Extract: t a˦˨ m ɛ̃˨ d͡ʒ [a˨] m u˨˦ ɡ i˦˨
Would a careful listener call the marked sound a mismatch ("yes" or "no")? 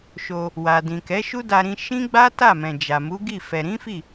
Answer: no